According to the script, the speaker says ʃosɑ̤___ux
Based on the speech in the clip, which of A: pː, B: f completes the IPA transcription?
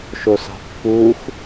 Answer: A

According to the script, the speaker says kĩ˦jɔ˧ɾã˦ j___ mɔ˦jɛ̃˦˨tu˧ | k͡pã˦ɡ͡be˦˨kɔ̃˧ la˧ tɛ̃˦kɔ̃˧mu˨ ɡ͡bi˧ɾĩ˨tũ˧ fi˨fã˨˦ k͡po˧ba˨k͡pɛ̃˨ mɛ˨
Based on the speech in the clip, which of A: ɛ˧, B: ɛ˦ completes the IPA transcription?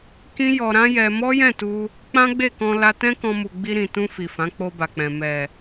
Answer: A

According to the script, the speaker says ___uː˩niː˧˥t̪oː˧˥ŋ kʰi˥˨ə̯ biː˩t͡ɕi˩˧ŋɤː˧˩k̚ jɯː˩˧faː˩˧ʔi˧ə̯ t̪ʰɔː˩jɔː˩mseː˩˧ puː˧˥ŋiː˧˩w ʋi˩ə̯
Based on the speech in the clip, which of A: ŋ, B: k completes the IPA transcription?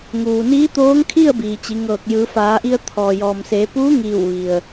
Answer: A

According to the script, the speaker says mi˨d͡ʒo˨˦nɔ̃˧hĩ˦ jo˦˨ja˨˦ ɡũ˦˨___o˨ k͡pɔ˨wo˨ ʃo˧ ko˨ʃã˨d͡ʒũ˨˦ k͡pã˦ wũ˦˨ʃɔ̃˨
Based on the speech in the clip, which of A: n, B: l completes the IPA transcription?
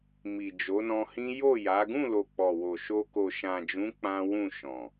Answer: B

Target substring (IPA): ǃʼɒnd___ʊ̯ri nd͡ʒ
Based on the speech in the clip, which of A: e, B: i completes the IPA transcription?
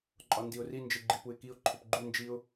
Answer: B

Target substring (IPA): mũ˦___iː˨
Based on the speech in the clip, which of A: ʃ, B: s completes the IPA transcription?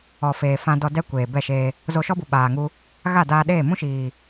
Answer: A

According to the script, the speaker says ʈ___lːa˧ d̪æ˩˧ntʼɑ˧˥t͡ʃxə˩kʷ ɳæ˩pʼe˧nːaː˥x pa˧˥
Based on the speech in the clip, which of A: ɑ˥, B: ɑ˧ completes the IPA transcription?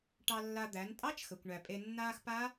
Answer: B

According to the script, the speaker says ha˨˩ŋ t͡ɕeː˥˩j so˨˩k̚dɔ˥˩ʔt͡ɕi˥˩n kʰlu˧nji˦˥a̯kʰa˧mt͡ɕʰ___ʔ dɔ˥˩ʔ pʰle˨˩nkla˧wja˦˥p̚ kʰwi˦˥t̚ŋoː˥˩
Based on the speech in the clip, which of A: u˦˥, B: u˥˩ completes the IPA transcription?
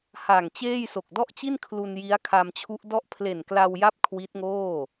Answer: A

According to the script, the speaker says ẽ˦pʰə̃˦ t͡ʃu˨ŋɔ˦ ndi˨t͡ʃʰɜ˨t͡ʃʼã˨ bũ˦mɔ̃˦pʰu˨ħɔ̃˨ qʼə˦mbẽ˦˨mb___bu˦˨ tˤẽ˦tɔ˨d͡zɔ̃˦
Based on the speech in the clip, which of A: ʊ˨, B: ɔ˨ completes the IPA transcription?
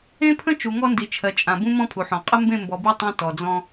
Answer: B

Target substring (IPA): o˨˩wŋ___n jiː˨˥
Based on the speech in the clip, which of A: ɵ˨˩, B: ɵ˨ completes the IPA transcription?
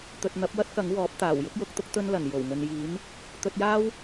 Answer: B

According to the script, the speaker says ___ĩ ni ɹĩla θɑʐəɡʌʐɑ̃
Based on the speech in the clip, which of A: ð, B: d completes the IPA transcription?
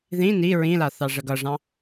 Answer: A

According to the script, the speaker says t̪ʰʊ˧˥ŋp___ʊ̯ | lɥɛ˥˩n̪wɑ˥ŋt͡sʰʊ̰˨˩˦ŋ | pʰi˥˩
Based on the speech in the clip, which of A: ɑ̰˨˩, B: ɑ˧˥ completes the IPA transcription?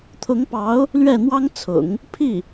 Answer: B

